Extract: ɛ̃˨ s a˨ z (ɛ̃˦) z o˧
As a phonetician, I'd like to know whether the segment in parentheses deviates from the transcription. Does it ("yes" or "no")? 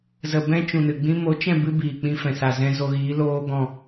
yes